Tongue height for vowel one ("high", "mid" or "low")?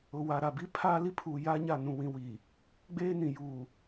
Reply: high